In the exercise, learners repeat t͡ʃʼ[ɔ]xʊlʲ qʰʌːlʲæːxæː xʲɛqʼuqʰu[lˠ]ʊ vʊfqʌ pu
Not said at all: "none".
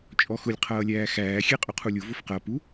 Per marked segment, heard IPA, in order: ɔ, lʲ

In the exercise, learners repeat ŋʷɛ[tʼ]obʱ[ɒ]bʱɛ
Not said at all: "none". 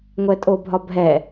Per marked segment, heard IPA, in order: tʼ, ɒ

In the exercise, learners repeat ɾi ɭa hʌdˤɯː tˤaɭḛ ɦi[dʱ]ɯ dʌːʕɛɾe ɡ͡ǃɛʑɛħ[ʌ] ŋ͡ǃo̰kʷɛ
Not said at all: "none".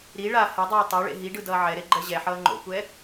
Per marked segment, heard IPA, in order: ɖ, ʌː

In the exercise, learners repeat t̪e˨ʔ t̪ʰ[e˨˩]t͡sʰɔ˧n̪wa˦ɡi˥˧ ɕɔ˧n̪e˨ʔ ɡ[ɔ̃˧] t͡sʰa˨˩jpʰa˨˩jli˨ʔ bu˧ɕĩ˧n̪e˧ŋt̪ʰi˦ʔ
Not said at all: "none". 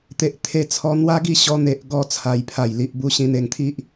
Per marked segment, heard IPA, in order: e˧, ɔ˧

